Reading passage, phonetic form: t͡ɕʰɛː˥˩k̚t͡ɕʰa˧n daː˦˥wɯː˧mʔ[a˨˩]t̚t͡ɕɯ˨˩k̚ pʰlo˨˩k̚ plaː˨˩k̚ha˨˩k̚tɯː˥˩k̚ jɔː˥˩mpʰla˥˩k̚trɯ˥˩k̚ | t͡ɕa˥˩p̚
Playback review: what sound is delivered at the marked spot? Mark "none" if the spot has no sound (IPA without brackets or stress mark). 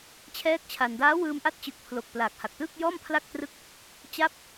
a˦˥